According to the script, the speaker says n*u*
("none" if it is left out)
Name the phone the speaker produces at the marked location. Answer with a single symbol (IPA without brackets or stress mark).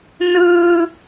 ɯ